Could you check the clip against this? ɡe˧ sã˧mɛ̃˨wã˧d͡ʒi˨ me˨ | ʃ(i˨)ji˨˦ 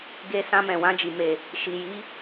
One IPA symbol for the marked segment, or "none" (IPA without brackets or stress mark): i˨